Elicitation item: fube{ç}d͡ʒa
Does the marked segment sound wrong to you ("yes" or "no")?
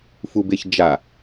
no